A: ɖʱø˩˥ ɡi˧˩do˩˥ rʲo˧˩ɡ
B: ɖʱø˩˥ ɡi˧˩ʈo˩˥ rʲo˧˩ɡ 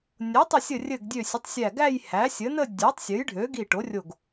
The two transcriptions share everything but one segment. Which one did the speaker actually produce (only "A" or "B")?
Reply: B